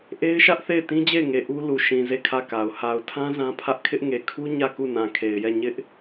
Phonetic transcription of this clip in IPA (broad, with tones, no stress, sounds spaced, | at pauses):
ʔ e˦ ɪ̯ ʃ ä˦ ʔ θ e˦˨ ɪ̯ t ĩ˦ d͡ʑ e˦˨ ɪ̯ ŋ e˨ ʔ u˦ l u˨ ʃ ĩ˨ z e˦˨ kʰ ä˦˨ k a˨ ʊ̯ h a˨ ʊ̯ tʰ ã˦ z ã˦ pʰ ä˦ ʔ kʰ ɪ˦ ʔ ŋ e˨ kʰ u˦ ɲ ä˦˨ k u˦˨ n ã˨ kʰ e˨ ɪ̯ j ɛ˦˨ ɲ ɪ˦ ʔ